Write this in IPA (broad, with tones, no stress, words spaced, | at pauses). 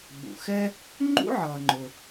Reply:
ɓṵ˩xɛ˥ | ŋ͡ǃṵ˥ʕʌː˩ŋ͡ǃʊ˩